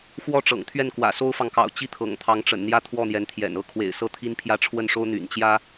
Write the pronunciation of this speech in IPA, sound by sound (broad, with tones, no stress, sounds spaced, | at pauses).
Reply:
x w ɔ˥ ʈ͡ʂ ɤ̰˨˩ ŋ t̪ʰ ɥ ɛ˥˩ n k w ä̰˨˩ s o˥ ʊ̯ f ɑ˨ ŋ k ɑ̰˨˩ ʊ̯ t͡ɕ i˥˩ t̪ʰ ɤ̰˨˩ ŋ t̪ʰ ɑ˧˥ ŋ ʈ͡ʂ ə̰˨˩ n n̪ j ä˥˧ t̪ʰ w ɔ˥˩ n̪ j ɛ˧˥ n t̪ʰ j ɛ̰˨˩ n ɤ˥˩ kʰ w ḛ˨˩ ɪ̯ s ɤ˥˩ t̪ʰ i˥ n pʰ j ä˥˧ ʈ͡ʂʰ w ə˥˩ n ʂ o˥ ʊ̯ n̪ y̰˨˩ n t͡ɕ j ä˥